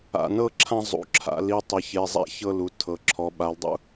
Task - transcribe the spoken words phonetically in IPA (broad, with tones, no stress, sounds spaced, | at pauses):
a̰˩˧˩ n ɤ˥˧ ǁʰ ã˥˧ zˤ ṵ˩˧˩ ǁʰ a̰˩˧ l i˩˧˩ tˤ i˩˧ ç e˩˧˩ zˤ a̰˥˧ ç ɤ˥˧ l u˩˧ tʰ ɤ˩˧ ǁʰ ɔ˩˧ ɓ a˩˧ l dˤ ṵ˥˧